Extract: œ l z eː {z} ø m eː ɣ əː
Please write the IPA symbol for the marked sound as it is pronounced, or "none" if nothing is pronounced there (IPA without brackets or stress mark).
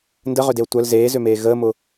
z